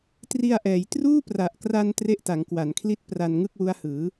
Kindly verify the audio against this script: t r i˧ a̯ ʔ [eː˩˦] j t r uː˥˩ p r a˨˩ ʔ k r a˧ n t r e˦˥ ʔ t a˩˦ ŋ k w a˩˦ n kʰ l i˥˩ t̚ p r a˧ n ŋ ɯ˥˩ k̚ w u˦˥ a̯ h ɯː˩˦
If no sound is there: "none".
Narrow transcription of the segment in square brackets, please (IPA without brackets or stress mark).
ɛː˩˦